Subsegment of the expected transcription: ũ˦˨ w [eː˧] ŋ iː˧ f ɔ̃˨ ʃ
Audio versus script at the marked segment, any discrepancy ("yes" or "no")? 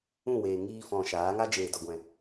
yes